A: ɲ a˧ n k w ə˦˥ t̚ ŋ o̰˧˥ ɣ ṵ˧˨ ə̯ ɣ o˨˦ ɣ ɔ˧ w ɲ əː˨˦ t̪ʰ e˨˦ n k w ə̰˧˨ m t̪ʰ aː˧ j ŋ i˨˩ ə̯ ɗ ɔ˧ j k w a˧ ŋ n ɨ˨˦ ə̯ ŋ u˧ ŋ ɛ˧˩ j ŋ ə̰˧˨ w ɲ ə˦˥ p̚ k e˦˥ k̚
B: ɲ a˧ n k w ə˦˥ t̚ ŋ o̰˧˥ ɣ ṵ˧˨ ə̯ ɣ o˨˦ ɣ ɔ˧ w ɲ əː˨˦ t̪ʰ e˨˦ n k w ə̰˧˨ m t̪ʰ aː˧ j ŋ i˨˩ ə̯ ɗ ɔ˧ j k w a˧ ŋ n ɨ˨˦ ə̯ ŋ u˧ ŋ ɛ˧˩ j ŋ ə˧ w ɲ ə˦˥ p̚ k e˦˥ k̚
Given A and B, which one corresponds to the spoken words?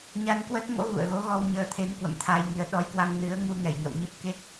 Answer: A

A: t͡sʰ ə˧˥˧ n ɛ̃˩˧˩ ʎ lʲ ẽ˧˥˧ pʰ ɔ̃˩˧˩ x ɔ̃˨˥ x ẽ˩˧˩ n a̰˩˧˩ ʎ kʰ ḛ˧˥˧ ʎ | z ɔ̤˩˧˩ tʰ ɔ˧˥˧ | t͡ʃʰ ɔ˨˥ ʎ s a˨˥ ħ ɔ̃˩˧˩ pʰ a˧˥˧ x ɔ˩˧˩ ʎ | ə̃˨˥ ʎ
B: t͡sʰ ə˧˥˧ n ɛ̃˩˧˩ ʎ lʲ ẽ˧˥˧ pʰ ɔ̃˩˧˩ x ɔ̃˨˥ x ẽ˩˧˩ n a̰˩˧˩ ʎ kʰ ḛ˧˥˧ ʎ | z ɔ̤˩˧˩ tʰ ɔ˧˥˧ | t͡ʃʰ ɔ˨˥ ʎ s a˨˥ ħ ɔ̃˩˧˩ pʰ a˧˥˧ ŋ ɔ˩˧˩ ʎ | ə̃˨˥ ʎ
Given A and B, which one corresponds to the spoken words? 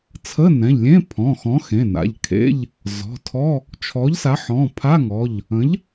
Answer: B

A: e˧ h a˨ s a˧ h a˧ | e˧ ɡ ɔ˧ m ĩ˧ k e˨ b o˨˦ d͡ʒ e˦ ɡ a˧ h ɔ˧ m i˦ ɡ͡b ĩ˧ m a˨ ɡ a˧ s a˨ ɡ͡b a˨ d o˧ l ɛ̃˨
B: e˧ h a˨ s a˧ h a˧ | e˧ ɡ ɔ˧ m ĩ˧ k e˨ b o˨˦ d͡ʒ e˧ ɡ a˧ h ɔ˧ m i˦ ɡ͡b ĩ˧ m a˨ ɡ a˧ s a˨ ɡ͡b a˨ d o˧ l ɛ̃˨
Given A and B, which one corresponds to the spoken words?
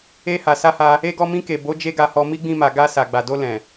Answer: A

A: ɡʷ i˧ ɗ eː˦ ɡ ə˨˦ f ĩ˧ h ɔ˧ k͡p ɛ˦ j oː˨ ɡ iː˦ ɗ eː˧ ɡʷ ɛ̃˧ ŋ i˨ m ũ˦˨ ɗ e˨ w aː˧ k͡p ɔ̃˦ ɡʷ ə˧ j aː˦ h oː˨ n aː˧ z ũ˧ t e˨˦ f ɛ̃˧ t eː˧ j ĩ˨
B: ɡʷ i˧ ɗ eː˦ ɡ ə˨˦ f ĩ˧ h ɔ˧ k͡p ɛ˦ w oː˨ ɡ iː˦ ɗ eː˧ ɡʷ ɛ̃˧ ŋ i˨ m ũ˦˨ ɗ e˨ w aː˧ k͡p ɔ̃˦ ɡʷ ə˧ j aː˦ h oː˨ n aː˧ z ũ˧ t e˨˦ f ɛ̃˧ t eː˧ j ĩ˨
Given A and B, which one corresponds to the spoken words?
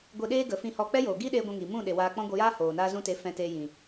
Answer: A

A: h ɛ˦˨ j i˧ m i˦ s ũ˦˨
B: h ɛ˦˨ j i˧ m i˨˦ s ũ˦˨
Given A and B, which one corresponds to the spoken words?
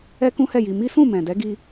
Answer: A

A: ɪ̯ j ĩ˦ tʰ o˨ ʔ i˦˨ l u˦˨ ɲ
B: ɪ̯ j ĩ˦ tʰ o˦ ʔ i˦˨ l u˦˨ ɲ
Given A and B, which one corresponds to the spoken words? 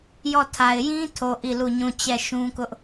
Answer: A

